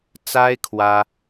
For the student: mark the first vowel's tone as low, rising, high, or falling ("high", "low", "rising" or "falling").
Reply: high